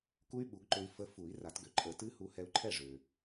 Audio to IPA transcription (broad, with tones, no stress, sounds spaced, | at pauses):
k u˦˥ y̯ ɓ u˨˩˦ ɡ ǃ ø˧ i̯ f ə˧ f u˨˩˦ i̯ r a˨˩˦ t ɡ ø˩ ǃʼ ə˨˩˦ t ɨ˦˥ h u˧ h ɛ˧ u̯ ǃʰ ɛ˥˩ ʐ ø˩